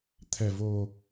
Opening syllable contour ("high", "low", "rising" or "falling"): low